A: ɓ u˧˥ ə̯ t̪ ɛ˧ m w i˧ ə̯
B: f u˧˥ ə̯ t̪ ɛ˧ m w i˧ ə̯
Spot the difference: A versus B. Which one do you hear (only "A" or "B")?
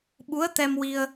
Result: A